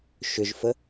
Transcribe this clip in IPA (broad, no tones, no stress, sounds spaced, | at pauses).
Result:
ʃ ʏ ʒ f ə